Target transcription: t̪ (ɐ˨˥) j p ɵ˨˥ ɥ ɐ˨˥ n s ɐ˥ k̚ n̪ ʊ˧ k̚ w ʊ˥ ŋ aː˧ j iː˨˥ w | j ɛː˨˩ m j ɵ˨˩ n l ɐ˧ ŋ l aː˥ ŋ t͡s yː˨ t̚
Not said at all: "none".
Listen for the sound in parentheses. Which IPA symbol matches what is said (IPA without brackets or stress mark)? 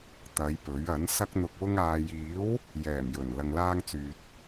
ɐ˨˧